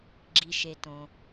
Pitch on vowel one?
low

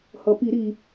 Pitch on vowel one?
low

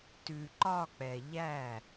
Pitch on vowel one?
low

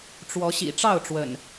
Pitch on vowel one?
rising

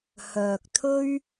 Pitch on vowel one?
low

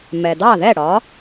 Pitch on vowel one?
low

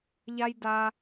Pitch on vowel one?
high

